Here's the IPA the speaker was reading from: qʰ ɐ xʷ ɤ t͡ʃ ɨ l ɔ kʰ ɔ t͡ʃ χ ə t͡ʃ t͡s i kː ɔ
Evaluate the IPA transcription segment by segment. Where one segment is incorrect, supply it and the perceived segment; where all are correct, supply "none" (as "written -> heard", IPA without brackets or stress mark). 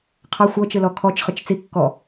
ə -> ɨ